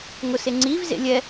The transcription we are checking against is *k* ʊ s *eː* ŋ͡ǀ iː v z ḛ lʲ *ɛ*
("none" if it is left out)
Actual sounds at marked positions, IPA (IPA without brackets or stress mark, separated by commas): ŋ, e, ɛ